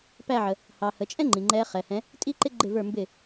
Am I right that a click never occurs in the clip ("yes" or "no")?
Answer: no